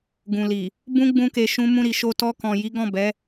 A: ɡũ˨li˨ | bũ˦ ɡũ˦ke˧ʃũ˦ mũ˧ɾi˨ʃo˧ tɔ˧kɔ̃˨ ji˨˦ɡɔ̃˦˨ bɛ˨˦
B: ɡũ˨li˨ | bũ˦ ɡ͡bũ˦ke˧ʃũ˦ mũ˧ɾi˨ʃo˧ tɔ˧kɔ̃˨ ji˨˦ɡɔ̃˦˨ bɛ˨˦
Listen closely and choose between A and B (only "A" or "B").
B